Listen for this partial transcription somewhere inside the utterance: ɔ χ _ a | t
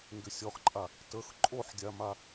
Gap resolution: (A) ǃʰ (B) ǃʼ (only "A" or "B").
B